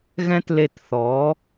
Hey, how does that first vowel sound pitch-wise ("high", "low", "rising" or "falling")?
high